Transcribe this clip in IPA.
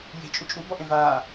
je̤t͡ʃʼu t͡ʃʼubɔʔẽ va

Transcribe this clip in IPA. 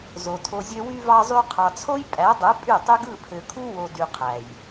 zo˨tʰo˧zʲø˦ wy˧vɑ˧zˤy˧ qʰɑ˨t͡sʰo˦j pʼæ˨˦dˤɯ˨˦ pʼy˦˨tˤy˦ɡ ɯ˦˨pʰø˨kʰu˦ wo˧dy˧qʰæ˨j

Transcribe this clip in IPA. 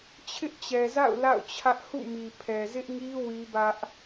t͡ɕʰɪ˦ʔt͡ɕɛ˨za̰˦˨ʊ̯ la̰˦˨ʊ̯t͡ɕʰä˦ʔ hṵ˦˨mi˨ pʰɛ˨ zɪ˦ʔŋi˦ wi˦bä˦ʔ

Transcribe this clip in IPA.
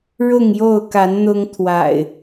ɻʊ˥˨ŋjo˥˨ʊ̯ka˨˦n n̪ʊ˦ŋ t̪ʰwa̰˨˩ɪ̯

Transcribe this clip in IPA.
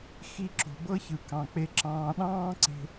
xi˧ǁo̤˨bɤ˦ çɯ˨kɑ̃˨k͡pe˧ ǁɑ̃ː˧ ɗɑ̃ː˦ǀe̤˧

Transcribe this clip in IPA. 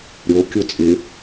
ɾʲokʲo t͡sʼɪ

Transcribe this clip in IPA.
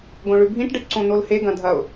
ɡõɭʉbʱĩʈ ɖɨʈǀõnolhe ɡɐ̃dʱɐʊ̯

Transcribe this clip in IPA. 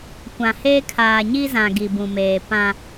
kʷã˨heː˦ kʰaː˨ɲi˦zã˨ ɡi˨bũ˨meː˨ pã˦

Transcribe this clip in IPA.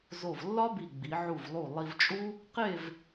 zo˧˩vlːɒ˥bi˧˩ɡ͡bi˩˧ ʕu˧˩vlˠu˧˩ lˠi˧vt͡ʃʼu˥ | qe˥˧v

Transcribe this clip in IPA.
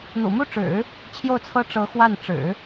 n̪ṵ˨˩mu˥˩ʈ͡ʂɻ̩˨˩˦ | t͡ɕʰjo˥˩ʊ̯t͡sʰɤ˥ ʈ͡ʂɤ˧˥ xwa˥˩n ʈ͡ʂɻ̩˨˩˦

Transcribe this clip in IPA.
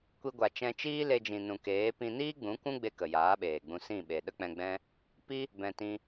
kʷi˧ɡʷa˨ t͡ʃɛ̃˧t͡ʃiː˦ le˧d͡ʒĩ˨nũ˨keː˨˦ pĩ˧niː˦ɡ͡bũ˨˦ kʷũ˦ɡ͡be˧ kə˨jaː˨˦ɓeː˨ɡ͡bũ˧ sĩ˦˨ɓe˨ ɗə˦k͡pɛ̃˧ɡ͡bɛ̃˦ | pi˦ | bɛ̃˨tĩ˧

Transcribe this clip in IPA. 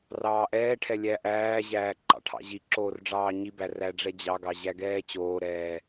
rɑːʔɛːʈʰɛ lʲæʔæːʑæː ǃɑ̰ʈʰɑ̰ʑiǁoːr ɖ͡ʐɑːɲibæ ræɖ͡ʐɛd͡ʑɑɡɑ ʑæɡɛːt͡ɕoːɾɛː

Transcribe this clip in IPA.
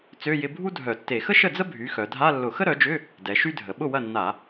t͡sø˧˥˧jɪ˧˥˧ bʱu˥dʱœ˧˩˧tːe˧˩˧ xə˥ʃə˥˩d͡zə˥ bʱy˩˥xœ˩˧ dʱa˧˥˧ lːʊ˧˩˧xə˥ɾœ˩˥d͡ʒʏ˧˥˧ | dɛ˩˧ʃy˥dʱə˩˧ ɓʊ˥˩wɐ˥˩nːa˧˩˧

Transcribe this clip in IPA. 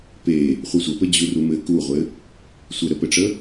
pe | χʷɘsʷəpɘ d͡ʑurumɘ kuʁʷɘ | sʷɘɾəpɘʈ͡ʂə

